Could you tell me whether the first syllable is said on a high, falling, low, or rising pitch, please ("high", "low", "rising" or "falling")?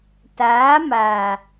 rising